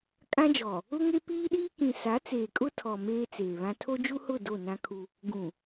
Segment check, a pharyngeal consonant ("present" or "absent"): absent